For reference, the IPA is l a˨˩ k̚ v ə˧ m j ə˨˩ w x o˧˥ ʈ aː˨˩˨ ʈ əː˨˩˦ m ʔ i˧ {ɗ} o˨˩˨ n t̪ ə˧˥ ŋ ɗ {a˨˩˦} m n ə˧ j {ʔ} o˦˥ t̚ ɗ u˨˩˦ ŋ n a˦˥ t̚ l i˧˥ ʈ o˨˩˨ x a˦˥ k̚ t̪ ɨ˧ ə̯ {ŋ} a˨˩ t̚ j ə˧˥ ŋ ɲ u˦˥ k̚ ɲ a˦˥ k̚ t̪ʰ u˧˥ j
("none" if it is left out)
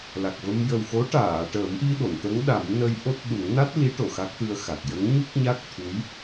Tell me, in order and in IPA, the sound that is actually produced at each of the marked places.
ɗ, a˨˩˦, ʔ, x

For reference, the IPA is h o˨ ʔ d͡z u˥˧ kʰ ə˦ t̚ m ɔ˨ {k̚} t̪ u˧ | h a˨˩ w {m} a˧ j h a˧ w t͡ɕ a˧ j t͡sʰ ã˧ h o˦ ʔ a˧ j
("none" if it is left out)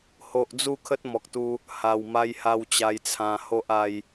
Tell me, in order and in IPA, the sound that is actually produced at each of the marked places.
k̚, m

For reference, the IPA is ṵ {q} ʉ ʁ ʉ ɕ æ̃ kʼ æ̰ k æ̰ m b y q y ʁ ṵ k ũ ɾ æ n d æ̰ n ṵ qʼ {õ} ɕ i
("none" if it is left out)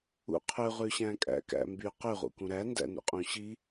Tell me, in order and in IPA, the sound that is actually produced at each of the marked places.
qʰ, ũ

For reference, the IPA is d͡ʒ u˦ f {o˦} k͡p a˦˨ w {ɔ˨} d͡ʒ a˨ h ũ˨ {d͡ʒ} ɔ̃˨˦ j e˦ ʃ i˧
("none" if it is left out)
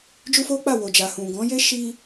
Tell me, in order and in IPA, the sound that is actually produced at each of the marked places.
o˦, o˨, ɡ

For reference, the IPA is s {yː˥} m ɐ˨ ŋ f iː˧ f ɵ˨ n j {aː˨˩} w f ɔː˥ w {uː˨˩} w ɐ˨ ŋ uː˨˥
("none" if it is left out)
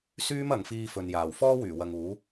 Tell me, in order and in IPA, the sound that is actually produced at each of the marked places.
yː˥, aː˨˩, yː˨˩

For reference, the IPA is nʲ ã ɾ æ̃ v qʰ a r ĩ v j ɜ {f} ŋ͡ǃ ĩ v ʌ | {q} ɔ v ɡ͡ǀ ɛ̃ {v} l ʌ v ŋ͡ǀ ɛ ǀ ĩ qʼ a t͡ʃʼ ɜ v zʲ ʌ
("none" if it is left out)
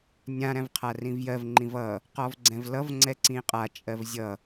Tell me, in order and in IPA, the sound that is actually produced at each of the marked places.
v, q, v

